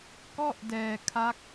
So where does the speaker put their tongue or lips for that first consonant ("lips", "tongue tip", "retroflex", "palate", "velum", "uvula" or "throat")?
velum